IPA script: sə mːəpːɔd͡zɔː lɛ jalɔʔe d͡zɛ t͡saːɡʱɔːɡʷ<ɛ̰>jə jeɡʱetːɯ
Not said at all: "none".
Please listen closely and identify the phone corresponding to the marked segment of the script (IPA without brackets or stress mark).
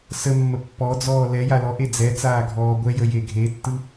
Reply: ɛ